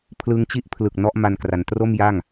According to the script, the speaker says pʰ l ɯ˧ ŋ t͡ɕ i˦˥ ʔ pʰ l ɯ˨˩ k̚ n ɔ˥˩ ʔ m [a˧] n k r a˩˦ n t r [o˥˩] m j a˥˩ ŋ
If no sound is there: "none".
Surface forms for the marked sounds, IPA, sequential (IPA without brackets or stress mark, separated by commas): a˧, o˥˩